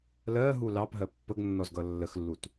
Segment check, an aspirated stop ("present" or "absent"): absent